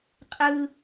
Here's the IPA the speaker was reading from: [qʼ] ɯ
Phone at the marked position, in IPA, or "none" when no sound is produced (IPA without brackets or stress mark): qʼ